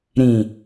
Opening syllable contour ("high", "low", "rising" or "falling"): low